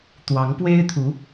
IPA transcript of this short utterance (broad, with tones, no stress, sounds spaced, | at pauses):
t̪ w ɑ˧˥ ŋ p w e˥ ɪ̯ t̪ʰ u˧˥